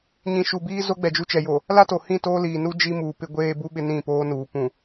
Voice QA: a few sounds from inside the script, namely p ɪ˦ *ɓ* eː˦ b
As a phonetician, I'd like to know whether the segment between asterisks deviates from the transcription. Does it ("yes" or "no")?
yes